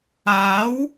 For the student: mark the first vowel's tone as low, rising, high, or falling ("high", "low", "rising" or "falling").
rising